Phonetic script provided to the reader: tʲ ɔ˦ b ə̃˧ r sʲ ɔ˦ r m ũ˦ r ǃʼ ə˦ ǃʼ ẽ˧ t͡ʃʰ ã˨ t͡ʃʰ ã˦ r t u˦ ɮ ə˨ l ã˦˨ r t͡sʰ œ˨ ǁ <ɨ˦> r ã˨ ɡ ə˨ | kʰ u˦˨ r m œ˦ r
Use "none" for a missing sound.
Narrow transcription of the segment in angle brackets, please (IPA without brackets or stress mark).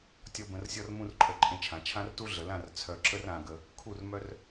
ə˦